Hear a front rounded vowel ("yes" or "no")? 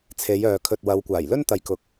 yes